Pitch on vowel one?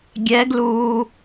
rising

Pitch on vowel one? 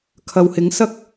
low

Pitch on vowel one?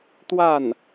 falling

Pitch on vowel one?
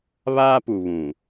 high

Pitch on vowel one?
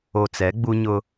low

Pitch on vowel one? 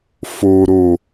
low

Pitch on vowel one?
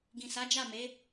low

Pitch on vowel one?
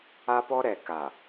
high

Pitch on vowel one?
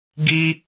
high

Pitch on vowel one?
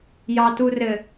low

